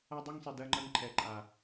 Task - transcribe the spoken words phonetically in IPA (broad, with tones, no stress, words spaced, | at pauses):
a˦dˤɛ˦ŋsˤi˨ dɜ˦ŋ͡ǃɐ˦ŋǃʰɛ˨ ǃʼa˨